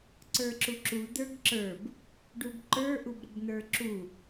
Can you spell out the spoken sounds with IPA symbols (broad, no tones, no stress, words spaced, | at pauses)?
ǀə˞ǁuǁu d̪ə˞ɡǁə˞b | ɖubǃə˞ ʔubɾəbn̪ə˞ǁu